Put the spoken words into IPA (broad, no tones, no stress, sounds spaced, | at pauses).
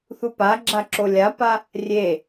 θ u p a ɡ͡ǁ a ǁ o lʲ a p a | rʲ e